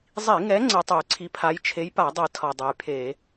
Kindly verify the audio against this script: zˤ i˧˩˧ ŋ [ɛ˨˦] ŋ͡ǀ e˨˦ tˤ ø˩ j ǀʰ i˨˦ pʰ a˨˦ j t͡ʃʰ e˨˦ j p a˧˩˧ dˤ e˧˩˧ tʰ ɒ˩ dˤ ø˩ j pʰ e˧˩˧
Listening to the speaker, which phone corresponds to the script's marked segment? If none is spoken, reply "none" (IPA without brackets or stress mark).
ɛ˨˦